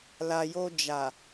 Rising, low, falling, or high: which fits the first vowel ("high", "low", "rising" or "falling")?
low